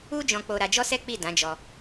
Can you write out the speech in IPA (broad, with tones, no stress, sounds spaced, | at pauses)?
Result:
u˦ d͡ʒ ɔ̃˧ k͡p o˧ ɾ a˧ d͡ʒ ɔ˦ s ɛ˦ k͡p i˦˨ d ã˨˦ d͡ʒ ɔ˧